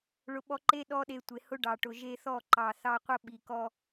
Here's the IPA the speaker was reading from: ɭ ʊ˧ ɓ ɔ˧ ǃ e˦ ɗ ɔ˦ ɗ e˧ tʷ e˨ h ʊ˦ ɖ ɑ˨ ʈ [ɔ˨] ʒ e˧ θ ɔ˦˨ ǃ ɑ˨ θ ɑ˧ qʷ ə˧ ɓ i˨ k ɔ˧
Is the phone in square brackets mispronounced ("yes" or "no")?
yes